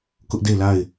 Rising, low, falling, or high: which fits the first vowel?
high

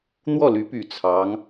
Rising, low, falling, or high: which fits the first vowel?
falling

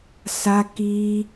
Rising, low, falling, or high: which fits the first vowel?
high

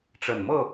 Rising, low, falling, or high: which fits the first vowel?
low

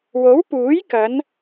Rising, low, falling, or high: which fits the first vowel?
rising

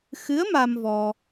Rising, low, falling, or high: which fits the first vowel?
rising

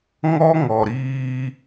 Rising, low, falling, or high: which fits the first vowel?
high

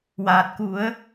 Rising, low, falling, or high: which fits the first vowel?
low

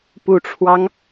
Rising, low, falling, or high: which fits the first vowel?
low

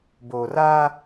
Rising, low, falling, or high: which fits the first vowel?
low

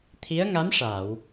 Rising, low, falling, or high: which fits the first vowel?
rising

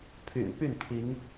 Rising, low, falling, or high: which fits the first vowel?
low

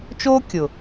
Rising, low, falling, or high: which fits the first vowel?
high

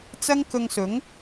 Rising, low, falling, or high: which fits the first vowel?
high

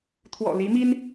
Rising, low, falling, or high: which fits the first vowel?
low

